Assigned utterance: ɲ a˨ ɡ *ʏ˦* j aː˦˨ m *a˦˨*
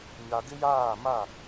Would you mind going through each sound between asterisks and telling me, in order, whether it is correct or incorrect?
incorrect: ɪ˦, correct

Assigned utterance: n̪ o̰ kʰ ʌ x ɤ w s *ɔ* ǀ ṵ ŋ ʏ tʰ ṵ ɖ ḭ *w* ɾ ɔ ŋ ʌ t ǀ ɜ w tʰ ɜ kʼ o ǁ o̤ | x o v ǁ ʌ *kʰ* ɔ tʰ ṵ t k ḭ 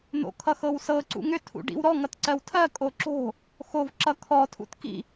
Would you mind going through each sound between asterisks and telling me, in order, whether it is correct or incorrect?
incorrect: ɤ, correct, correct

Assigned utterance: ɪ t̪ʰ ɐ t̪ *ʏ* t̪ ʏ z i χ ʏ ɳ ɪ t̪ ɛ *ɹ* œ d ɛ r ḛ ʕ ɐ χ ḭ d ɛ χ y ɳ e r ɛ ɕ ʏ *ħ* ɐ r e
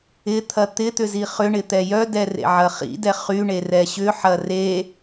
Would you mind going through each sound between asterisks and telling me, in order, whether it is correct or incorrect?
incorrect: ɪ, incorrect: j, correct

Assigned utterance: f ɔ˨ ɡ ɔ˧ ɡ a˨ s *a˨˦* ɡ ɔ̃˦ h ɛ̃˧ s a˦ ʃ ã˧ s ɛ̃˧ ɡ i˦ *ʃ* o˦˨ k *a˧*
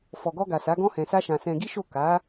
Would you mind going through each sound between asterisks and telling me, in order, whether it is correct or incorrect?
correct, correct, incorrect: a˨˦

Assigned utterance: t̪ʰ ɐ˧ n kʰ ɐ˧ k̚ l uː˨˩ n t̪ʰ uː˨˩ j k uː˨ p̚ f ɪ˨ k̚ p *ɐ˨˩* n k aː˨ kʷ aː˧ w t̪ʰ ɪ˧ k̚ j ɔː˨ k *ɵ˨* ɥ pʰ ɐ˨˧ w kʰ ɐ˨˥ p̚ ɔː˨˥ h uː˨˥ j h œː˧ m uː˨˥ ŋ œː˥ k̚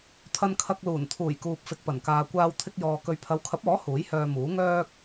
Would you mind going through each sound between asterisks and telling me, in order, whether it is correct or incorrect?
correct, correct

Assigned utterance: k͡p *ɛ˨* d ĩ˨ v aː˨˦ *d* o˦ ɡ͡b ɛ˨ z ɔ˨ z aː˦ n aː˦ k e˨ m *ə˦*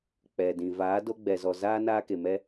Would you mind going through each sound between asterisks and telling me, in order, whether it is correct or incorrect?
correct, correct, incorrect: ɛ˦

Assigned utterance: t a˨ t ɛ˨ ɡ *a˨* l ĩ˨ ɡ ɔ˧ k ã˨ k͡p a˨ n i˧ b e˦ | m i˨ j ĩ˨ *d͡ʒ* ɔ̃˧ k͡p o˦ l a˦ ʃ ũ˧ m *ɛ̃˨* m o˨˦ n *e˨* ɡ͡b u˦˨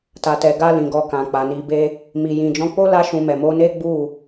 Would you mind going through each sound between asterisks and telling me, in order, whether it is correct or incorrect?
incorrect: a˧, correct, incorrect: ɛ˨, incorrect: e˦

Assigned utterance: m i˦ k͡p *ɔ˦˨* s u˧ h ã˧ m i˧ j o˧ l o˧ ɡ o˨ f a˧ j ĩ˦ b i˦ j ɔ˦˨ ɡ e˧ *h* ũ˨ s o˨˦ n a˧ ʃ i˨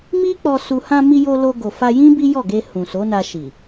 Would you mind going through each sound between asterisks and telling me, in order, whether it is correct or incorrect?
incorrect: ɔ˧, correct

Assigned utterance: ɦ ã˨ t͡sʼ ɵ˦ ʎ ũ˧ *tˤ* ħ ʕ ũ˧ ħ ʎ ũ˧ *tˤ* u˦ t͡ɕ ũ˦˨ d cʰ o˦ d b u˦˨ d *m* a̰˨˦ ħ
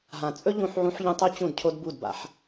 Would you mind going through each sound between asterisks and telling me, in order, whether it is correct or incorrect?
incorrect: none, correct, incorrect: b

